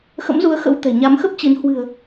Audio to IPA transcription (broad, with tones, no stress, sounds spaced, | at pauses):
x ə̰˧˥ m z u˨˦ ə̯ x ə̰˧˥ w t̪ ɛ̤˨˩ ɲ a˨˦ m x ə˦˥ p̚ t͡ɕ i˨˦ n h w ɨ̤˨˩ ə̯